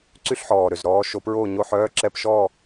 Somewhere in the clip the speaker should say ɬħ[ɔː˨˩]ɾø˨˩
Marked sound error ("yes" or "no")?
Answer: no